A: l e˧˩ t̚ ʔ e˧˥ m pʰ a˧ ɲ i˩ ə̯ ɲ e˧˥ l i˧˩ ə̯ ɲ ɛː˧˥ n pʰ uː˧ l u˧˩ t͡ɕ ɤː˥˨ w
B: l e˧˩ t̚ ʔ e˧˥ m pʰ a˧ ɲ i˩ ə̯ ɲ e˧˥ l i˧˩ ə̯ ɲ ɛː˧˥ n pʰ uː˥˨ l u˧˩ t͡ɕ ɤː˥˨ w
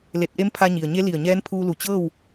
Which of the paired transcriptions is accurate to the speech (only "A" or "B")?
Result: A